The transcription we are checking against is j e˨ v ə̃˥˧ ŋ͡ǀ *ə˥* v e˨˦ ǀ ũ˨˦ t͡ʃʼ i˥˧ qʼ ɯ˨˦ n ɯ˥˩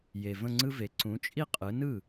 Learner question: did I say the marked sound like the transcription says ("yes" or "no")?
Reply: no